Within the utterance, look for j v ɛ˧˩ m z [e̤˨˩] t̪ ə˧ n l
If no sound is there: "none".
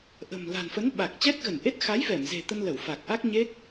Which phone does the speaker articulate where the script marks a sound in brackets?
e̤˨˩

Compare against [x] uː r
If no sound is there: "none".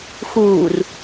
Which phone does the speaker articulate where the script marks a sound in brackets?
x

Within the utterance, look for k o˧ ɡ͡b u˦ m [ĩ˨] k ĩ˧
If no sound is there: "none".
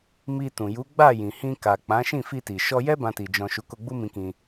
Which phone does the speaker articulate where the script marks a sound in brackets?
ĩ˧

